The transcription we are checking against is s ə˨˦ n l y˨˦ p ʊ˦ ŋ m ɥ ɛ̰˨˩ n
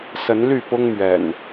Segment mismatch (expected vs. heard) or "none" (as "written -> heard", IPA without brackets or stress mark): y˨˦ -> y˥˨